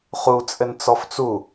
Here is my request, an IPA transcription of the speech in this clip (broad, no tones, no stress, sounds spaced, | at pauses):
χ u t͡sʼ ɘ n t͡s ɔ f t͡s u